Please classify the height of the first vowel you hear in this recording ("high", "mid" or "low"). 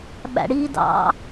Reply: low